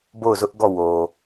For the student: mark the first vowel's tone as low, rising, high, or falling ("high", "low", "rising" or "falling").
falling